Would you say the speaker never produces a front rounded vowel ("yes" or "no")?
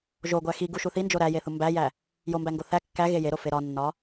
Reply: yes